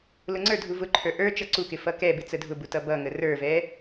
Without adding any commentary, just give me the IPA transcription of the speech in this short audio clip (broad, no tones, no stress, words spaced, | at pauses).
lʊŋ͡ǀə˞ dʱuvʊǃʰə˞ ʔə˞ t͡ʃʌǀukɪ fʌkɛbɪ t͡sədʱʊbutʌ bʌŋə rə˞vɛ